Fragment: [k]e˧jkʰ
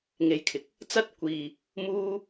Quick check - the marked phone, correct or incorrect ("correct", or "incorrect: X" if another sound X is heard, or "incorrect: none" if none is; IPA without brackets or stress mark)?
incorrect: ŋ